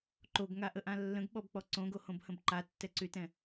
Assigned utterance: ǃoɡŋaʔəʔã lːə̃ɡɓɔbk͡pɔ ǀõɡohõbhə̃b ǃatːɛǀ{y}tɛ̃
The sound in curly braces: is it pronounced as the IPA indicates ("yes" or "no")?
yes